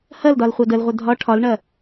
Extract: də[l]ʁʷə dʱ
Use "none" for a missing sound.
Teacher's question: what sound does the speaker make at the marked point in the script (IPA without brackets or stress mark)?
l